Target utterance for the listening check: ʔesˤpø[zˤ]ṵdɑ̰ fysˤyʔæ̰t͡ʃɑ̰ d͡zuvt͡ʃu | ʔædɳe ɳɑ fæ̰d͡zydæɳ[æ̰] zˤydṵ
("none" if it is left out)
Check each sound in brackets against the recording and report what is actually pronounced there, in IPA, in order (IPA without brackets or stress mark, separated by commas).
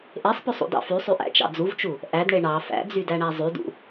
sˤ, æ